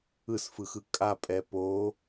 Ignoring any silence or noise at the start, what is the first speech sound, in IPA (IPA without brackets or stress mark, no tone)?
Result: ɯ